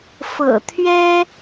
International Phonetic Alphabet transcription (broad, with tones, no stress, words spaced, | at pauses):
fɤ̰˨˩t̪ʰɥɛ˥